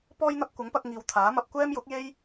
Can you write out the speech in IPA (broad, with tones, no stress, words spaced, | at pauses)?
pɔː˥jn̪ɐ˥p̚ kʷɐ˨˥ŋpɐ˧k̚ ŋiː˨wt̪ʰaː˨˥mɐ˧p̚ kʷɛː˥mjʊ˨˥k̚je˥j